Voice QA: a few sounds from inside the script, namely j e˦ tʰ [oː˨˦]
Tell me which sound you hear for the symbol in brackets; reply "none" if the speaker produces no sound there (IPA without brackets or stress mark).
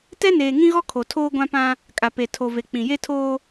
oː˦